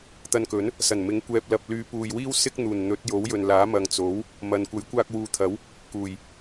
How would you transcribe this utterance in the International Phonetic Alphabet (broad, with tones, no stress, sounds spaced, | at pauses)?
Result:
t̪ ɐ˧ n k ɵ˨˥ n | s ɐ˨˩ n m ɪ˨˥ ŋ kʷ ɛː˨ p̚ l ɐ˨ p̚ l yː˨˧ p uː˨ j w iː˥ w s ɪ˥ k̚ n̪ uː˨˩ n n̪ ɵ˨˥ t̚ j o˨˥ w j ɵ˨ n l aː˨˥ m ɐ˨ ŋ t͡s o˨˥ w | m ɐ˨ n kʷ ɐ˨˥ j kʷ aː˧ k̚ w uː˨ t̪ʰ ɐ˨˥ w | k uː˨˩ j